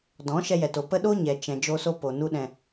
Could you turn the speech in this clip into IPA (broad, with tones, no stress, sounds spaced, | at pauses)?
d ɔ̃˨˦ ʃ ɛ˧ j ɛ˨ t o˨ p ə˧ ɗ o˦ ɲ ɛ˨ t͡ʃ ɛ̃˨ d͡ʒ o˧ s o˧ p o˨ n u˧ ɗ ɛ̃˨